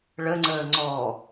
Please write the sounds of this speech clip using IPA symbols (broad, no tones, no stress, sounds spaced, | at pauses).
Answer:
ɭ ə ŋ͡ǀ əː ŋ͡ǀ ɔ